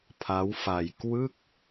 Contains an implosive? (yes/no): no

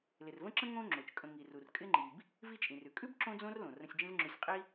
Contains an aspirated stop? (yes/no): no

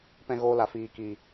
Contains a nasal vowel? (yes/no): yes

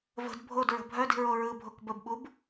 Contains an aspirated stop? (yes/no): no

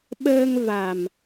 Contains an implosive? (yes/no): yes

